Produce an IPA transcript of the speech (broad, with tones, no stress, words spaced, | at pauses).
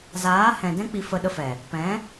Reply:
zaː˨˦hɛ̃˨dɛ̃˦ k͡pi˧fə˧ ɗə˧fɛ˨ | pɛ̃˨˦